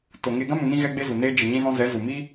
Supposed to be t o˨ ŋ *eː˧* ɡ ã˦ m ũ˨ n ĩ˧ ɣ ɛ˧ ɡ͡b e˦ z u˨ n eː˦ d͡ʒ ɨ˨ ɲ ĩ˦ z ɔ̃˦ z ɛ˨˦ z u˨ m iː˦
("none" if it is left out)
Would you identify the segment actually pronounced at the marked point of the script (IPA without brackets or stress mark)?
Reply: e˧